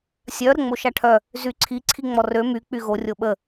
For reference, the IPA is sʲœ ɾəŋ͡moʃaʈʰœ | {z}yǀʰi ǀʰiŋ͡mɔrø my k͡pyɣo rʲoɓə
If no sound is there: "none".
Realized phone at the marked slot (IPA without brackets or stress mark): z